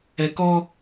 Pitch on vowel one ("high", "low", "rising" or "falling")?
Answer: low